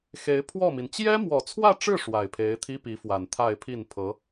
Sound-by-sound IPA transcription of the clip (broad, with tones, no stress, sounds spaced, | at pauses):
x e˧˥ ɪ̯ pʰ w ɔ˥˩ m i˩ n t͡ɕ j ɛ˥ m w ɔ˨˩ t͡sʰ w ä˥˧ ʈ͡ʂ ɻ̩˥˩ ʂ w a˨˩ ɪ̯ pʰ e˧˥ ɪ̯ t̪ʰ i˥ p i˧˥ f w a˨˩ n t̪ʰ a˥˧ ɪ̯ pʰ i˥˩ n pʰ ɤ˧˥